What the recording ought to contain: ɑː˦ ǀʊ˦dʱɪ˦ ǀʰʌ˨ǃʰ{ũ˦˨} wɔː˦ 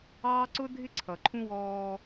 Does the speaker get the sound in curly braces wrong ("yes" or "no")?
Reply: yes